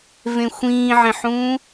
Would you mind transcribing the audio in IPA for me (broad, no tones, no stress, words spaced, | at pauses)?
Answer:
vẽxʷĩːʕẽħũː